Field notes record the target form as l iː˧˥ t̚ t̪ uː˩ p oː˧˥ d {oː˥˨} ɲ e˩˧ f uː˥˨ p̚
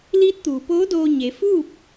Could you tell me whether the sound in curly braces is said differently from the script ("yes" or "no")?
yes